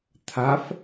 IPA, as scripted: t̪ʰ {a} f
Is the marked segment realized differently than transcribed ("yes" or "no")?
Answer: no